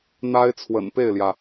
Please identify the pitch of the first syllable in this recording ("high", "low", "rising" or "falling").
high